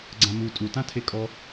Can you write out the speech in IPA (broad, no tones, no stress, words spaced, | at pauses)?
ɡ͡ǀãmu tʼutã tʰekʼɔ